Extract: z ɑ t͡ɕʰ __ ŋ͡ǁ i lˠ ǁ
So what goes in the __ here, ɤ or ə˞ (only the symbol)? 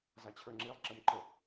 ə˞